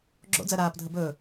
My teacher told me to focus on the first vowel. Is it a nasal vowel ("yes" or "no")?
no